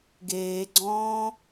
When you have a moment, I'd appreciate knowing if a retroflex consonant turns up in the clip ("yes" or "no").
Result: no